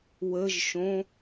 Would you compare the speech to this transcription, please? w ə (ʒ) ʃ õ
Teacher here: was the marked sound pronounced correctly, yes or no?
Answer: yes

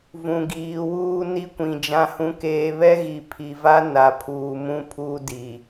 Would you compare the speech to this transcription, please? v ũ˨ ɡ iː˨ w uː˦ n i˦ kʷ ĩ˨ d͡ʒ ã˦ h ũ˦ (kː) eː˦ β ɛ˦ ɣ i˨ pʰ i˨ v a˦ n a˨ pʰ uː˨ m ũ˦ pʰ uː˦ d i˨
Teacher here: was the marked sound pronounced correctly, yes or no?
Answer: no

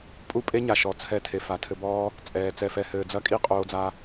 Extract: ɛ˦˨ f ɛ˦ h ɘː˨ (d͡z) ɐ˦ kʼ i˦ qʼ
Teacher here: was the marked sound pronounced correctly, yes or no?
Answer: yes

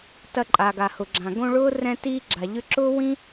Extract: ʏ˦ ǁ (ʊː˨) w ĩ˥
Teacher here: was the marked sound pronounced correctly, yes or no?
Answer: no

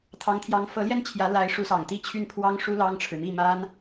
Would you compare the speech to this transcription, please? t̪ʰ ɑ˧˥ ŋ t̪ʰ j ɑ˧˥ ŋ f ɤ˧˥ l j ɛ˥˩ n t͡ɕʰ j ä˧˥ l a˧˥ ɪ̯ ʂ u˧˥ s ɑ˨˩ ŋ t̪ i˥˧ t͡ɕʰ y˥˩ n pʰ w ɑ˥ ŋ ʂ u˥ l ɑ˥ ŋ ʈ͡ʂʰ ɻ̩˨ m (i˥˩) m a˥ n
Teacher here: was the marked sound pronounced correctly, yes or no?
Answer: yes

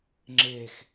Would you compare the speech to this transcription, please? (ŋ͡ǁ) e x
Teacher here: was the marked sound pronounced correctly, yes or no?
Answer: yes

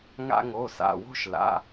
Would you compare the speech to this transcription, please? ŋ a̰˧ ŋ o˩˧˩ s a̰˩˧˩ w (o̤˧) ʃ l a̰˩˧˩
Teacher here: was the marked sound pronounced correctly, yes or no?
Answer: yes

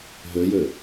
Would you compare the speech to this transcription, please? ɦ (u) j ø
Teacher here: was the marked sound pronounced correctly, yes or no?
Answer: no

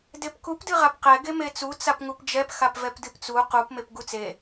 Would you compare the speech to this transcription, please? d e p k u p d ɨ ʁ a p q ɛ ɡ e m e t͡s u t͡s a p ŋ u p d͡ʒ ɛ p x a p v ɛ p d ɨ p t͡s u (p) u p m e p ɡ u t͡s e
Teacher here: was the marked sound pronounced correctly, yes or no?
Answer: no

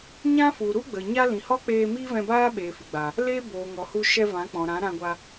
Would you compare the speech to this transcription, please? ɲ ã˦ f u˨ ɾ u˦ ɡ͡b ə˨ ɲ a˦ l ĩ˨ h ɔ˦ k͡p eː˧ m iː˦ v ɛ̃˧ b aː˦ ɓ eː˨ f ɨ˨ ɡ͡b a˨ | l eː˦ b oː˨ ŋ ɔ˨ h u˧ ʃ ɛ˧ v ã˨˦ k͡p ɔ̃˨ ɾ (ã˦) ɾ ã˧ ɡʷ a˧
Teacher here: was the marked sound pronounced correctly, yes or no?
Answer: no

